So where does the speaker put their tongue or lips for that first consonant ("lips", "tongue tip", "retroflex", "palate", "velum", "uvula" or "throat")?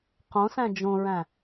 uvula